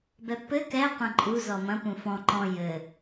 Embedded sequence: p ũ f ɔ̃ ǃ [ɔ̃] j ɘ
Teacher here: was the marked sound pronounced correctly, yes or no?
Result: yes